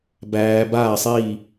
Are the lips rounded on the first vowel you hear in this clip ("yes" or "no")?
no